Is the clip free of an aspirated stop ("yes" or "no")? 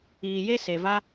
yes